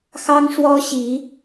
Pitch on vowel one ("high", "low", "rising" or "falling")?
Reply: high